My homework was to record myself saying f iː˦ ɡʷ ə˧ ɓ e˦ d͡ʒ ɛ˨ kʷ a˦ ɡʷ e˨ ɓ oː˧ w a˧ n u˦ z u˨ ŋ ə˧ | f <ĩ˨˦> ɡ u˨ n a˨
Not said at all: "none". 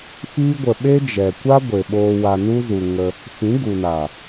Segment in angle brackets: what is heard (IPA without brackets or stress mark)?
ĩ˨˦